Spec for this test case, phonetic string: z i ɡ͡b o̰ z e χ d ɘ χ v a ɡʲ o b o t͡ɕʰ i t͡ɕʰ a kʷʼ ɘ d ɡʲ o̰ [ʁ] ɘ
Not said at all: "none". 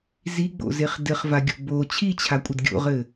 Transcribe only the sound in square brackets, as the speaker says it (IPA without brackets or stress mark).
ʁ